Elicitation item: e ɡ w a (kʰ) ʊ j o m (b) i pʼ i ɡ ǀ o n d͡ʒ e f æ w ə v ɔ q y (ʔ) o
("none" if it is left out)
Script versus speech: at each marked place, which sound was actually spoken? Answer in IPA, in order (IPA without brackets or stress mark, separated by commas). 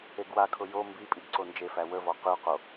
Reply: kʰ, b, q